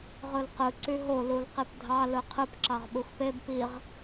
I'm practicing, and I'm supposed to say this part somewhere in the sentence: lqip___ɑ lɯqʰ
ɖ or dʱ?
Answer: dʱ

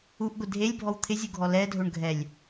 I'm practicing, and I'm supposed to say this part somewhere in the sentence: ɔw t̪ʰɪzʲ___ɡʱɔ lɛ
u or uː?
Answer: u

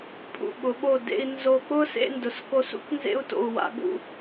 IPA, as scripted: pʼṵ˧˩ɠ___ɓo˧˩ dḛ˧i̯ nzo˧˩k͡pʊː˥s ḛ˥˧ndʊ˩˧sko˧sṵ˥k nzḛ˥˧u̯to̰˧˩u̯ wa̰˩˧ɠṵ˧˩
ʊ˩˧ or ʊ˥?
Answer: ʊ˩˧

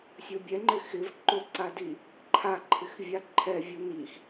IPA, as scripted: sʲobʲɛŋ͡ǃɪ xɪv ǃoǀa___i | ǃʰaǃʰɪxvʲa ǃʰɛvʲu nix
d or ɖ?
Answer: d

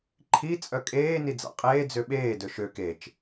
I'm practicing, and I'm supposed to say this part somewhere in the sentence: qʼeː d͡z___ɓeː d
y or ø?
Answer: ø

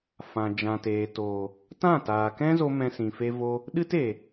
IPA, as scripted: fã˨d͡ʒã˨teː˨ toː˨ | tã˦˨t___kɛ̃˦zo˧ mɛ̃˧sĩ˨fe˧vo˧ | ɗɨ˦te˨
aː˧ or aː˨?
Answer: aː˨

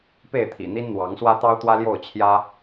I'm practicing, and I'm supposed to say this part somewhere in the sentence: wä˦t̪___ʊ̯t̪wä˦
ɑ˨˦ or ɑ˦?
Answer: ɑ˦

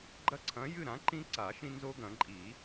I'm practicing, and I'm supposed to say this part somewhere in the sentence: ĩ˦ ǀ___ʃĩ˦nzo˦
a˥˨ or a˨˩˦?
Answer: a˨˩˦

